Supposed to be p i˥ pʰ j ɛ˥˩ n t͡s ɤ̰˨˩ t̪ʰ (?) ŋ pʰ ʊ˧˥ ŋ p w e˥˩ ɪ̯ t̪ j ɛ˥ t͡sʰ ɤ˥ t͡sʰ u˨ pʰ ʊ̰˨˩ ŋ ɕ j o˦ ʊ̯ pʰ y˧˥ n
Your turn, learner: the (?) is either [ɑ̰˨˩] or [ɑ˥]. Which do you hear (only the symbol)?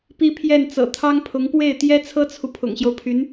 ɑ˥